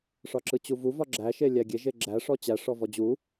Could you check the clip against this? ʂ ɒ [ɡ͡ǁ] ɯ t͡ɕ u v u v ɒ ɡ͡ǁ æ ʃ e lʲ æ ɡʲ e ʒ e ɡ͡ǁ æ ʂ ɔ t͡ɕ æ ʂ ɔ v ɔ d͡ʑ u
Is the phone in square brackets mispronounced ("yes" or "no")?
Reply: yes